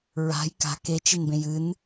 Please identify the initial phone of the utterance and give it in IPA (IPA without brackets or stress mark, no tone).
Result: ɹ